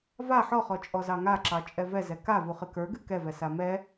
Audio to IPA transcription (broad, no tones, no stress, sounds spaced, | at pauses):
v a ħ ɔ χ ɔ t͡ʃʼ ɔ z ɑ ŋ a ǁ ɑ t͡ʃʼ ɛ v ɛ z ɛ k a v u χ ɨ k ə˞ ɡ ɨ k ɛ v ɛ s a m ɛ